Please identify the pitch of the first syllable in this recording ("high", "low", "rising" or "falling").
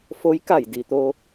rising